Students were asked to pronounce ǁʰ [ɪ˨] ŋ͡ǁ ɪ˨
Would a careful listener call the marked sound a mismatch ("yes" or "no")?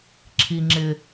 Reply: yes